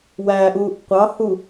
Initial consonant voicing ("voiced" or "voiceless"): voiced